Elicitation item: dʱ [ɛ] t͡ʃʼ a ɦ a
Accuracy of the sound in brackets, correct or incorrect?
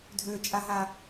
incorrect